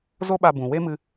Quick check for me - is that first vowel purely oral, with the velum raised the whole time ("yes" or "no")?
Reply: yes